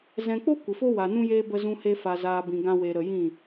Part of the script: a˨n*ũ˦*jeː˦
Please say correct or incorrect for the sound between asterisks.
correct